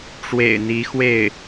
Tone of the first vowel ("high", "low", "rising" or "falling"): low